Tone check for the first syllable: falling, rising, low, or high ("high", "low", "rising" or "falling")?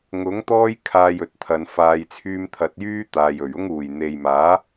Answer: rising